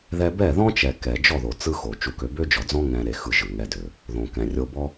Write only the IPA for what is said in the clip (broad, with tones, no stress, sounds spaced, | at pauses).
ð ɛ˧ b ɛ˦˨ ð ɔ̃˦ t͡ʃ ɛ˨ k ɛ˨ d͡ʒ ɔ˦˨ ð o˨ t͡s ɯ˦ x o˨ t͡ʃ u˧ k ø˧ b ø˦ d͡ʒ ɔ˨ d͡z ɔ̃˦ ŋ ɛ̃˧ ɾ e˧ x ɯ˧ ʒ ɯ˨ ŋ ɛ˧ d ø˨ | ð õ˨ k ɛ̃˨ rʲ o˧ b ɔ˦